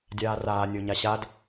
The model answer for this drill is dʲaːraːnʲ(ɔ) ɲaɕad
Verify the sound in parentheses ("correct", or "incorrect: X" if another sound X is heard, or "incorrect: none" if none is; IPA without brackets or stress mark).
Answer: incorrect: o